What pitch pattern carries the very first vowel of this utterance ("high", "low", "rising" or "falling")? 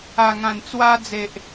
low